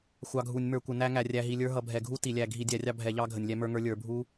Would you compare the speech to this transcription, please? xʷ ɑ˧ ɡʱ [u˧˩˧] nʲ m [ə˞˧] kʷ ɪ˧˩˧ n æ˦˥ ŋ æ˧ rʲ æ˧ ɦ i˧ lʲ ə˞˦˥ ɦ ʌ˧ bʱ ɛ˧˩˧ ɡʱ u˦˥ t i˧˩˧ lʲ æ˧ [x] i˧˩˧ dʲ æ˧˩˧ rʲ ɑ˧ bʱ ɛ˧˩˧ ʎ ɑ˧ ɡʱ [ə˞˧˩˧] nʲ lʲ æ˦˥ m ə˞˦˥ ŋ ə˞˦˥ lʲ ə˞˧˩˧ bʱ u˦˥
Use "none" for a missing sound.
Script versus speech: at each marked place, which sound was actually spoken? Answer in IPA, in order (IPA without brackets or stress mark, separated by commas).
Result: u˧˩˧, ə˞˧˩˧, ɡʱ, ə˧˩˧